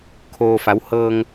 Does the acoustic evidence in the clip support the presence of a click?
no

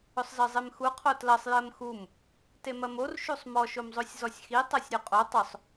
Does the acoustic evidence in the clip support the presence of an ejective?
yes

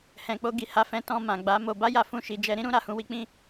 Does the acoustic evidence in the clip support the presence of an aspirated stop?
no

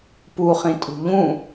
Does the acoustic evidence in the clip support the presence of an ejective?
yes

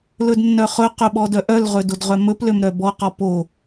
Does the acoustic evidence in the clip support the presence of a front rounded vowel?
yes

